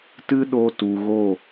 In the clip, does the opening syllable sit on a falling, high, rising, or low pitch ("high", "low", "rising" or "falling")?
high